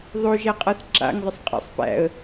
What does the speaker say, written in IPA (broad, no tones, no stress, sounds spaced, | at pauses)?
ðˤ o ʒ æ qʼ a θ ǁ a̰ ŋ ðˤ ɘ sˤ qʼ æ̰ sˤ p æ̰ ə̯